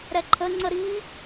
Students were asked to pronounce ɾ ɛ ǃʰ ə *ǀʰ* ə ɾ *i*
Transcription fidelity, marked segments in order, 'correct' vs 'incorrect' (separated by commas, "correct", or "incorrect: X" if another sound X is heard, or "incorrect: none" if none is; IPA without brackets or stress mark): incorrect: ŋ͡ǀ, correct